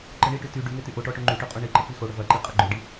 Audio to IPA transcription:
ǃəɳiʈy ty ɖyŋe tyʔoʈɔ ʈoŋ͡ǃyʈø qʼoɳiǃə k͡pixoɽə vɐǃi qʼɐɡ͡ǃøɖi

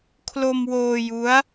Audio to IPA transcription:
kʰlo˧mwoː˧ju˦˥a̯

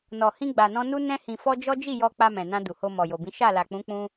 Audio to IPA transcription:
nɔ˨hĩ˧ ɡ͡ba˨nɔ̃˧nu˦ nɛ̃˧hĩ˨fɔ˧ d͡ʒɔ˦d͡ʒi˦˨jɔ˧ k͡pa˧mɛ̃˨nã˧ du˨ho˧ mɔ˨jo˨bĩ˨˦ ʃa˦˨la˨k͡pũ˨˦ k͡pũ˧

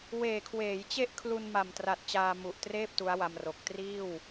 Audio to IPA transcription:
weː˨˩kʰweː˩˦j t͡ɕe˥˩ʔkʰlu˧nma˨˩mtra˨˩t̚ t͡ɕaː˧mu˨˩ʔtreː˥˩p̚ tu˦˥a̯wa˧mro˨˩k̚ triː˥˩w

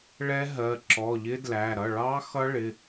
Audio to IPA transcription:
ɭɛ˦˥ɦɜ˩˧˩ ǁɔ˩˧˩ʎɪ˦˥dlæ˩˧˩ ɾʌ˩˧˩ɭɑ˦˥ xʌ˦˥ɭɪ˩˧˩

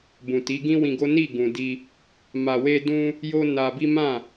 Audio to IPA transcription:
bũ˨ti˨˦ɡĩ˦wĩ˧ ɡo˦ ni˦˨ɡũ˨ di˧ | ma˧we˦dũ˦ | jo˦na˧bi˦ mã˦˨

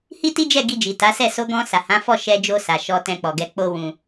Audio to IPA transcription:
hi˦ti˦d͡ʒɛ˦˨ ɡi˧d͡ʒi˨ta˨˦sɛ˦˨ so˧ɡɔ̃˧ sa˨hã˨˦fɔ˦˨ ʃɛ˧d͡ʒo˧ sa˨ʃɔ˧ tɛ̃˧k͡pɔ˨ɡɛ˧ k͡po˦ wũ˧

